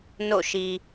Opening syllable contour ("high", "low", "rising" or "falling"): falling